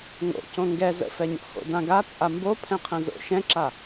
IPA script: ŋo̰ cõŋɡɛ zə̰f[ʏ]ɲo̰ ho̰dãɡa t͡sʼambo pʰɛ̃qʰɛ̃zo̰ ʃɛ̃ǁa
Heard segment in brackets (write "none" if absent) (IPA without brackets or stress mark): ɛ